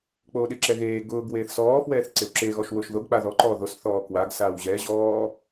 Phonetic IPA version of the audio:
k͡p oː ɗ ɪ ǁ ɛ ɣ eː ɡ ʊː ɡ w eː θ s ɔː f w ɛː θ ǀ e w ǁ e ɣ ɔ ʃ w ʊː ʃ ð o ɡ k͡p a ð ɔ ǃ ɔː ð o s θ ɔː k w a ɡ s aː w ʑ ɛ ʑ ɔː

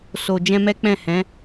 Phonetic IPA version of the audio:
s o˨ d͡ʒ ɛ̃˧ m ɛ˦ k͡p ɛ̃˦˨ h ɛ̃˨˦

